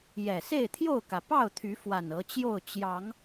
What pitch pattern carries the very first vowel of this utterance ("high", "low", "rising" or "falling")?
low